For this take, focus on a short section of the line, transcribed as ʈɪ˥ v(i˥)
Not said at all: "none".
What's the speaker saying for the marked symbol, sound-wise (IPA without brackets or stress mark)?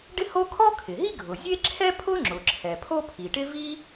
i˥